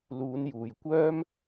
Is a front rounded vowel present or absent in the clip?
present